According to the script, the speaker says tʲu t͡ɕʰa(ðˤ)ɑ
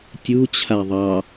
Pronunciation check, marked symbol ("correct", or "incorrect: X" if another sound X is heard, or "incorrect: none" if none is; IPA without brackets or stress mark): correct